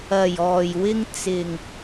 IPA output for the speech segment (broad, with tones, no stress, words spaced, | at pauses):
ɐ˨j ɔː˨jwɪ˧ŋt͡sɪ˨ŋ